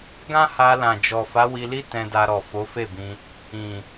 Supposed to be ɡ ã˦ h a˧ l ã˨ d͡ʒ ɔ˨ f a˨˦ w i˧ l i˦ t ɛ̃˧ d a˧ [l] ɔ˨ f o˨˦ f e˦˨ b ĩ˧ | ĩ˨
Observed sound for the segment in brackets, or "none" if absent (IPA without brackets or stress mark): ɾ